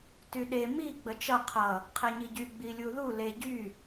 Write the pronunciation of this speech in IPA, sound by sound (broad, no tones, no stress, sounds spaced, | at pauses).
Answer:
t y ɗ e m i ɡ͡b ə t͡ʃ ʌ qʰ ʌ | qʰ ɛ ɲ i ɟ y ɡ͡b i lʲ u ð u l e ɟ y